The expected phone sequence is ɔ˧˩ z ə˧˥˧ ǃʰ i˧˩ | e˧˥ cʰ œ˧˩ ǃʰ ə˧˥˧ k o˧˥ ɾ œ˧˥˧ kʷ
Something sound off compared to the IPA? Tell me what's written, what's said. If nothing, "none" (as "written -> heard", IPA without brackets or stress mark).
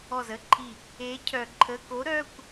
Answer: none